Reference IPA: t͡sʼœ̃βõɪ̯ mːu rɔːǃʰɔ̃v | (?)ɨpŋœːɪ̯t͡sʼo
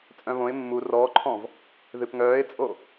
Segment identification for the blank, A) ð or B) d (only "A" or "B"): A